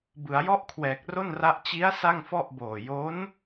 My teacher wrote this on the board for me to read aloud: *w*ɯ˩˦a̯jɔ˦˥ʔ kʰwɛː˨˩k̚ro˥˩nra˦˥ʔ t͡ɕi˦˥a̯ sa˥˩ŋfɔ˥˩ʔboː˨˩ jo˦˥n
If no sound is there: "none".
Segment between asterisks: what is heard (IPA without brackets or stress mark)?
b